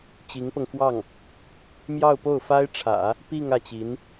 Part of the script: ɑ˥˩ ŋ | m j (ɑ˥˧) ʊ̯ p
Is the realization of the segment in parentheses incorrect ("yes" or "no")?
no